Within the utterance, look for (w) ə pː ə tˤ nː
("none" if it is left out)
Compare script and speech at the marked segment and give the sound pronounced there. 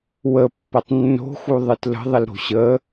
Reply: w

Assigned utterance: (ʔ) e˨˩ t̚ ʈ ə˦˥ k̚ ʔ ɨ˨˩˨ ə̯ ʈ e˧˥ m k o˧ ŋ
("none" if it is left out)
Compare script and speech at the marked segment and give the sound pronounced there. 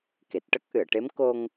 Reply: k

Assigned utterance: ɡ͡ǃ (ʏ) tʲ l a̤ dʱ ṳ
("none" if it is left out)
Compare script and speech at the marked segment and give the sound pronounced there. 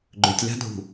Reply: ʏ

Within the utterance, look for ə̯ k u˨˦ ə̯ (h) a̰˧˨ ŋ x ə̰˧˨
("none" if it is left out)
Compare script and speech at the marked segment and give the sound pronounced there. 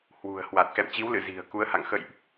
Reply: h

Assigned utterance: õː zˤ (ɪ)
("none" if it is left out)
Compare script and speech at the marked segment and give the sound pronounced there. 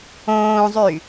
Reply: y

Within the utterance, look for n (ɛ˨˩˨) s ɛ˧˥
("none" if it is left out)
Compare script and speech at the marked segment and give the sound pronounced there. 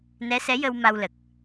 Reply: ɛ˧˥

